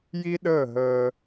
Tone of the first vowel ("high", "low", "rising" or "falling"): high